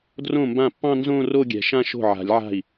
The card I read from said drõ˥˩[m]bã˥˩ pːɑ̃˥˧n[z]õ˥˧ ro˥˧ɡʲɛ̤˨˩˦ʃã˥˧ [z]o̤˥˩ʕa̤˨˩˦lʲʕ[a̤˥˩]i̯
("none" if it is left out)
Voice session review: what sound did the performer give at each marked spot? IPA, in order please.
m, z, ʃ, a̤˥˩

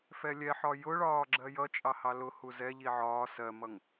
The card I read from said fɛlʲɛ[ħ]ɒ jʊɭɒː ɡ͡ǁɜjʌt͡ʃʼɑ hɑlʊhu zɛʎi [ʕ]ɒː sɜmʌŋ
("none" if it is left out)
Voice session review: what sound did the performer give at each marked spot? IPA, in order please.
ħ, ʕ

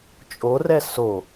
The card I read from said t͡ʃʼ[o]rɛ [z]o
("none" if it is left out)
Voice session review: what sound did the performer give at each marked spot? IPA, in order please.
o, s

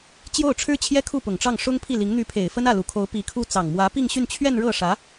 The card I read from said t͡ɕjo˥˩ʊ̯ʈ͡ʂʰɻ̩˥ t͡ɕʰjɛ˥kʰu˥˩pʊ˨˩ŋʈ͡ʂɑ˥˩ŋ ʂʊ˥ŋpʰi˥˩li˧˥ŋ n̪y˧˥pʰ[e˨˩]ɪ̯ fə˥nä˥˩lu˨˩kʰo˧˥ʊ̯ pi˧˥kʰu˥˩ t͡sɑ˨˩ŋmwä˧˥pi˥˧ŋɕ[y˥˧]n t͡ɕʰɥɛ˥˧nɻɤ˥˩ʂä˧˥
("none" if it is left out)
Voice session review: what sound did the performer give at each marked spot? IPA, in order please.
e˨˩, y˥˧

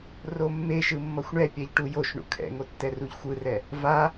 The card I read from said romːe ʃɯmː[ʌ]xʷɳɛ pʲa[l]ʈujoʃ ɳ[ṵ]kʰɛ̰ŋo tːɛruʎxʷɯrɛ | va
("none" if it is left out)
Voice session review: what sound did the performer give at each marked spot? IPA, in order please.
ʌ, ʎ, ṵ

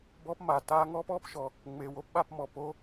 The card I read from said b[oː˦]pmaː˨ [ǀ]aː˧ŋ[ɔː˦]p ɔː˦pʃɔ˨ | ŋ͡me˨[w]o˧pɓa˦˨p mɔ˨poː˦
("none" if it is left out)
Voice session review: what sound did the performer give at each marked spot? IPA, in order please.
ɔː˦, t, ɔː˦, w

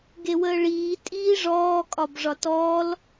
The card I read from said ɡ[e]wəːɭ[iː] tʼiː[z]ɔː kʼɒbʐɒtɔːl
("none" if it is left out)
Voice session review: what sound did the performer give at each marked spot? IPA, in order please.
e, iː, ʐ

